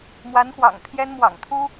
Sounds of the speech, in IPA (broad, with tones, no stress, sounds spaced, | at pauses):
m w a˧˥ n x w ɑ̰˨˩ ŋ pʰ j ɛ˥ n m w ɑ̰˨˩ ŋ t̪ʰ u˥